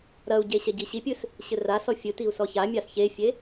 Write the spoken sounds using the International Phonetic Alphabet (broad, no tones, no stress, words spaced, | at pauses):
ɾɐu̯ɟe ɕɛɟiɕipʲɨs | ɕɘrasɔ fʲɨtiu̯ sɔçamʲas çefʲe